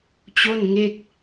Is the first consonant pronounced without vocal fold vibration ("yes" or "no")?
yes